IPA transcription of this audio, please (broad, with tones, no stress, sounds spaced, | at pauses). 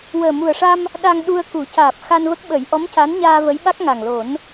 w əː˨˩ m u˨˩ ə̯ ʂ a˧ m | ɗ a˧ ŋ ɗ u˧ ə̯ k u˨˩˦ c aː˨˩ p̚ x a˧ n v ə˦˥ k̚ ɓ ə˨˩˦ j ʔ ɔ˧˥ m c a˧˥ n ɲ aː˧ v ə˧˥ j ɓ a˦˥ k̚ ŋ a˨˩ ŋ l o˨˩˦ n